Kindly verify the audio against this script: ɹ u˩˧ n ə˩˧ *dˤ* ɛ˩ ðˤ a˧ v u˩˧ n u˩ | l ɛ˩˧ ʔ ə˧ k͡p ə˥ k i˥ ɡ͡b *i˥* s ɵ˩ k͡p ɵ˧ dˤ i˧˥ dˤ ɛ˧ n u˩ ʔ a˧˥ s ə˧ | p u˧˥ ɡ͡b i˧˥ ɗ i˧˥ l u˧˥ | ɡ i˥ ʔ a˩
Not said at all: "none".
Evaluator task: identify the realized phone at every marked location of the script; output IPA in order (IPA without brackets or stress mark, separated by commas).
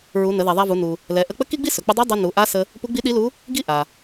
ð, i˥